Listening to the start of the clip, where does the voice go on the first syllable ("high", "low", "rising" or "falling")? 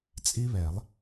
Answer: high